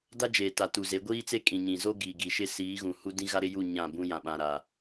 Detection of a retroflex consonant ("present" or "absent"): absent